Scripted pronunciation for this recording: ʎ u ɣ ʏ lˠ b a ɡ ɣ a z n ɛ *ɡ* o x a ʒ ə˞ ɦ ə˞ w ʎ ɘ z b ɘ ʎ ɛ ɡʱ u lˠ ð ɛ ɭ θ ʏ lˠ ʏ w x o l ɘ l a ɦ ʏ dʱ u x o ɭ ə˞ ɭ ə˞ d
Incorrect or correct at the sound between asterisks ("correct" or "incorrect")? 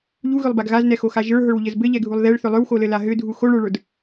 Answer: incorrect